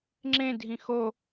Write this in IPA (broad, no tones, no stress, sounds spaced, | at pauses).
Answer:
ŋ͡ǁ ẽ dʱ ĩ x o